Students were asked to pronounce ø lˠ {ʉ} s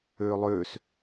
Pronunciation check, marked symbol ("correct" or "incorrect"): incorrect